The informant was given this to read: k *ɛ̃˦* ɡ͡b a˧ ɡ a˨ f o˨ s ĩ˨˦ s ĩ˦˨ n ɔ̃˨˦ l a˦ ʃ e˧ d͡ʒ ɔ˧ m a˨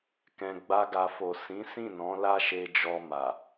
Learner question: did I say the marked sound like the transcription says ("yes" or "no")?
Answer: no